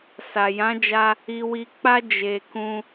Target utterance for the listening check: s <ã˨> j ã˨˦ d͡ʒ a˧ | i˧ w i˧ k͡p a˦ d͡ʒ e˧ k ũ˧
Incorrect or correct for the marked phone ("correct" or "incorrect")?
incorrect